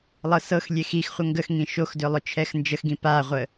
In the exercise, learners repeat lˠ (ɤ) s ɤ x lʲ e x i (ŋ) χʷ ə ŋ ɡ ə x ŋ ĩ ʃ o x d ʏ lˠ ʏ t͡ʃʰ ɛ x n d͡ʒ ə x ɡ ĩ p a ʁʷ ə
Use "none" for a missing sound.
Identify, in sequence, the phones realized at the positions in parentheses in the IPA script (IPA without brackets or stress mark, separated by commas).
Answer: ɤ, x